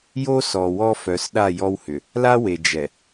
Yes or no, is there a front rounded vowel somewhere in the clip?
yes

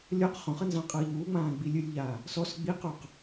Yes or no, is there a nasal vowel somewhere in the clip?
yes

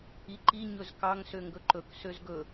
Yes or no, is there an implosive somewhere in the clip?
no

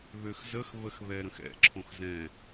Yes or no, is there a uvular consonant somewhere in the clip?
no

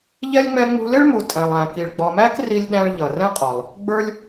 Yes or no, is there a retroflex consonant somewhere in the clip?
yes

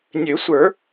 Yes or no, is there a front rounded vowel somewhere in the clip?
yes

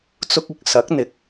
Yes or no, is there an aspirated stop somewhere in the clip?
no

